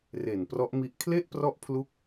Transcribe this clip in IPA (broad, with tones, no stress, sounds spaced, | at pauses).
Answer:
r e˨˩ n p r ɔ˦˥ ʔ m i˦˥ ʔ kʰ l e˥˩ ʔ p r ɔ˦˥ ʔ pʰ l u˦˥ k̚